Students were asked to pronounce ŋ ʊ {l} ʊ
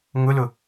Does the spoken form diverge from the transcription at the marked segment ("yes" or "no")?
no